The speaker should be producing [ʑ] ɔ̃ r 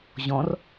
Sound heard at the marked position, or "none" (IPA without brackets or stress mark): ʑ